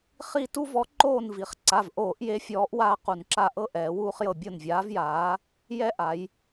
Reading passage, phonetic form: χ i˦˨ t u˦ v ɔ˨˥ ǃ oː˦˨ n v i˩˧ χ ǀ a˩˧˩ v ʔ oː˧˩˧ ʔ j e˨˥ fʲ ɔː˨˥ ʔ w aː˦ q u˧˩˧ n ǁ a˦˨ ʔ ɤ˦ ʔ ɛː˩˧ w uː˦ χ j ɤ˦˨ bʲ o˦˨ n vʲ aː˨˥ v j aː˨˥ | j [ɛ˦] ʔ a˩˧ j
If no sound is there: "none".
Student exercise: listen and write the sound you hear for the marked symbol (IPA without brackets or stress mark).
ɛ˦